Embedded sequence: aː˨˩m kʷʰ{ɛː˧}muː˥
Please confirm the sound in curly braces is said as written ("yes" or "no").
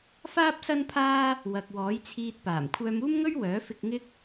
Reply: no